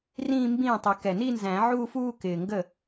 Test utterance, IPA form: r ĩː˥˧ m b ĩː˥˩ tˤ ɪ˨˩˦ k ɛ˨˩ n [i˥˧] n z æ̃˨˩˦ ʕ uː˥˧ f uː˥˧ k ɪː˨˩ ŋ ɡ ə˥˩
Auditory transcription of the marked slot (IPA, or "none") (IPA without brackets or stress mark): i˥˧